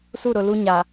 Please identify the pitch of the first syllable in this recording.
falling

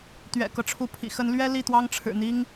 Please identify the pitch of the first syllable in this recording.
low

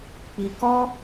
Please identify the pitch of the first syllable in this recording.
low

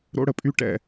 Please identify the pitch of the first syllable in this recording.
high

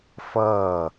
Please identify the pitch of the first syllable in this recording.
falling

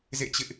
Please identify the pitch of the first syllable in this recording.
falling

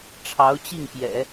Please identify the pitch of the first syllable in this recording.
rising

